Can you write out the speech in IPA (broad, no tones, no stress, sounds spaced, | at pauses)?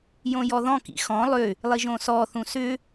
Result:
j õ j ɔ ð ɔ̃ k ḭ x ɔ̃ lˠ ʏ | lˠ i ʒ õ s ɔ θ ũ s ʏ